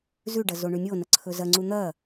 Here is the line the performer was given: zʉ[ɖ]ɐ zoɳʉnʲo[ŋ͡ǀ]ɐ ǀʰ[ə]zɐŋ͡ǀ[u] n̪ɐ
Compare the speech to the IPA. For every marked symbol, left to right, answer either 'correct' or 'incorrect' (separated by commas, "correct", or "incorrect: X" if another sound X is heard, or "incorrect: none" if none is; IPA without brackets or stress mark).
correct, incorrect: n, incorrect: ɵ, correct